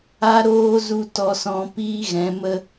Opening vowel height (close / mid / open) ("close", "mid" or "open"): open